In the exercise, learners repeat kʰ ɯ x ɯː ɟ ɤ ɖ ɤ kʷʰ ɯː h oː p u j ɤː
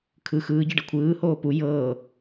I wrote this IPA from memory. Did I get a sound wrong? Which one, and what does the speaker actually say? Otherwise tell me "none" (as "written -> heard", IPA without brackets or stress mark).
none